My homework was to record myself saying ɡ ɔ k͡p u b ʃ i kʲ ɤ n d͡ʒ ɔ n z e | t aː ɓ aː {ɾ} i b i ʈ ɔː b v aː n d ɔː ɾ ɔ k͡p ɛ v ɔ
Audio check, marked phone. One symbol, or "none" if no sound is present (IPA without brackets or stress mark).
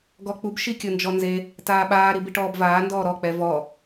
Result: ɾ